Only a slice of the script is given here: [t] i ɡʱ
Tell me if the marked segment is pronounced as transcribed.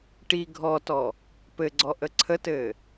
no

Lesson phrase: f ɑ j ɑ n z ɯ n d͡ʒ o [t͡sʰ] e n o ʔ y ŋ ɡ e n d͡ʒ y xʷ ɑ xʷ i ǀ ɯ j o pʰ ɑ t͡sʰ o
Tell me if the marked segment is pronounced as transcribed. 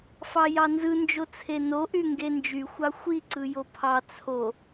yes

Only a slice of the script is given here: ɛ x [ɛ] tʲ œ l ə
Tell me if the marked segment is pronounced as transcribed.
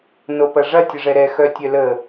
no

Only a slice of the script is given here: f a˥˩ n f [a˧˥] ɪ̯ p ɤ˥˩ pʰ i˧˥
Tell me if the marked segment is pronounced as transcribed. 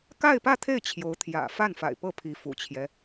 no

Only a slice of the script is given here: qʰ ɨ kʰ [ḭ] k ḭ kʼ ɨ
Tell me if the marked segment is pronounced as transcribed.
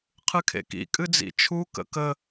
no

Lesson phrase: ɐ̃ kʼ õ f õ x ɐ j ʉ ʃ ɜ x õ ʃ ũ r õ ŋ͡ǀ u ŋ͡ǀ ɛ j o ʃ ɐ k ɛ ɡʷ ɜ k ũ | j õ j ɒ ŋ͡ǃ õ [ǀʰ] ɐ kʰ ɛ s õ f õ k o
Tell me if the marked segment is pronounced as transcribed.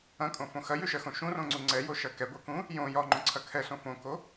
yes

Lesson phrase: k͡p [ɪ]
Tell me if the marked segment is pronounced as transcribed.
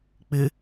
yes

